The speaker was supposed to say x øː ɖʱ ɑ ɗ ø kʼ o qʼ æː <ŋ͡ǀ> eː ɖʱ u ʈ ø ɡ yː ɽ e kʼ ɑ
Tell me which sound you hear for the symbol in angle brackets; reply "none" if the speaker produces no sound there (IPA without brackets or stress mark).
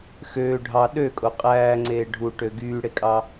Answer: ŋ͡ǀ